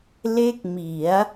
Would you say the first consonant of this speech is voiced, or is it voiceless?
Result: voiced